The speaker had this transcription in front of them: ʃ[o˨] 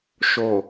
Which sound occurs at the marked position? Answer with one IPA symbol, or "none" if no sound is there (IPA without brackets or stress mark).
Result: o˨